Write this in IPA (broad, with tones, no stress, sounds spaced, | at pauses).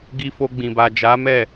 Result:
ɡ i˧ f o˧ ɡ͡b ĩ˨ b a˨ d͡ʒ a˨˦ m ɛ˦˨